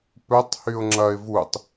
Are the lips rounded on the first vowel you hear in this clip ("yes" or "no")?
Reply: yes